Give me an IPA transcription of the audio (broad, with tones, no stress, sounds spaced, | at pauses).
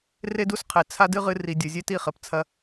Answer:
r e˦ d u˦ s qʰ e˨ t͡sʰ a˦ d ɨ˦ ʁ ɨ˧ r i˨ dʲ ɘ˨ zʲ e˦ t i˦˨ χ ɘ˨ p t͡sʰ ɐ˧